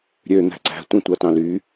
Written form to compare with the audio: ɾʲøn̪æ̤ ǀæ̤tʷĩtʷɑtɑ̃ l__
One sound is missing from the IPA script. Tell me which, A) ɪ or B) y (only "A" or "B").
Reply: B